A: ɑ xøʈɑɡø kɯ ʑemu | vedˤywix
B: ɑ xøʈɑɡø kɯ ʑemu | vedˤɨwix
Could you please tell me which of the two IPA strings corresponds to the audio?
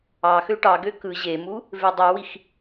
A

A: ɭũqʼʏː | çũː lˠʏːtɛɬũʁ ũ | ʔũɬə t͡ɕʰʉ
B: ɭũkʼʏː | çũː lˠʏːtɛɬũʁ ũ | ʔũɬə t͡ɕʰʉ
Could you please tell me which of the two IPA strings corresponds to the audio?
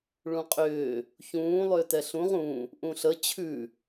A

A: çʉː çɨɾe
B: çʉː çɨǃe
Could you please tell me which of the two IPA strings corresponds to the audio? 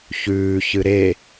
A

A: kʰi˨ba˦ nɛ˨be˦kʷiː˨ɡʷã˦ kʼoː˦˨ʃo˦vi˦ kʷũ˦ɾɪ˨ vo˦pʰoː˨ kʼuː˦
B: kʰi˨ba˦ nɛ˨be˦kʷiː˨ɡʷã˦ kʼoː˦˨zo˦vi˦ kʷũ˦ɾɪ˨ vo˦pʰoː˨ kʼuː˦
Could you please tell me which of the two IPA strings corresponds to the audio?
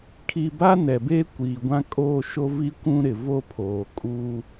A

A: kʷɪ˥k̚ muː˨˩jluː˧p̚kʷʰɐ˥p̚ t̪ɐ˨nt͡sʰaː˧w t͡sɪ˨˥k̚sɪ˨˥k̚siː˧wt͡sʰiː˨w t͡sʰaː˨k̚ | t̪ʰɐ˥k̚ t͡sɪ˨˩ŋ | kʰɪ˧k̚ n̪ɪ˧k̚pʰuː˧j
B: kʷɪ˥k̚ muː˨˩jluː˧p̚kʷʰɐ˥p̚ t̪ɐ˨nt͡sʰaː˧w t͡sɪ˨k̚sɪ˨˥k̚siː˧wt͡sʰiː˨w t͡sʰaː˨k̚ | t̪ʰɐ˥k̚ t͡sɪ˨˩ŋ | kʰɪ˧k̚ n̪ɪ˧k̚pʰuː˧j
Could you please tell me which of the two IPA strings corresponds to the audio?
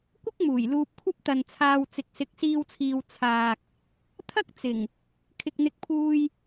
B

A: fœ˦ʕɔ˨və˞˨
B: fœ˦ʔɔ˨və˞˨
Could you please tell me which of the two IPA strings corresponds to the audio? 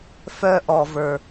B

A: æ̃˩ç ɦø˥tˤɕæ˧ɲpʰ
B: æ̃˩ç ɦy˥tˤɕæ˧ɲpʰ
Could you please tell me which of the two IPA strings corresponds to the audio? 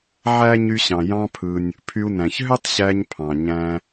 A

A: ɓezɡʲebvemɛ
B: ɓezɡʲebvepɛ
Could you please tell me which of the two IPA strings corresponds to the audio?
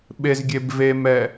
A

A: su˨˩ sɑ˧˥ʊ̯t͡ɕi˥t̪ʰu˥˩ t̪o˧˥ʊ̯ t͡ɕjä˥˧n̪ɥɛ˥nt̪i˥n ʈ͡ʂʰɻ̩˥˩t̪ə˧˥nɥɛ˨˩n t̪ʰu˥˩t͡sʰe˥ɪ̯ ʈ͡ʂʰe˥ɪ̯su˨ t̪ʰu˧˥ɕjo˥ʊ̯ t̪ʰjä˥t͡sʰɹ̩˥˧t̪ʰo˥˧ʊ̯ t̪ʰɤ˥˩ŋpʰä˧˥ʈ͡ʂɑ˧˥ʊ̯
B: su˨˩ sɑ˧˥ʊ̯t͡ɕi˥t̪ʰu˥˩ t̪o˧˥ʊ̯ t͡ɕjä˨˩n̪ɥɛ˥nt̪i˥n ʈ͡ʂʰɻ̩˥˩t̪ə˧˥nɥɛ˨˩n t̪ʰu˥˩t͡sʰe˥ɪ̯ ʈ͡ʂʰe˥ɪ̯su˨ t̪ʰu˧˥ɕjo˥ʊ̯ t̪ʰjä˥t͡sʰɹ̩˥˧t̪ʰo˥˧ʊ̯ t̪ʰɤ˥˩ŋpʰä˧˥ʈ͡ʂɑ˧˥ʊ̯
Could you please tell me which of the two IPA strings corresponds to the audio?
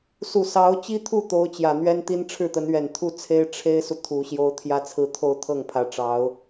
B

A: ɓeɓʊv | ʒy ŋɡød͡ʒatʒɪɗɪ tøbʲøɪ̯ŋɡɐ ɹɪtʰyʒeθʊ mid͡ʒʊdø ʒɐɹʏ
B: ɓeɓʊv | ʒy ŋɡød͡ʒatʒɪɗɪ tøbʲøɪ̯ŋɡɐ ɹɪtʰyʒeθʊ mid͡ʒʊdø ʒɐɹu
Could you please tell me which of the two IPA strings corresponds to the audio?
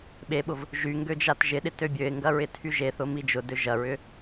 A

